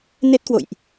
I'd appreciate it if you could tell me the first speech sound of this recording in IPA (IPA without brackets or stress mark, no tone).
n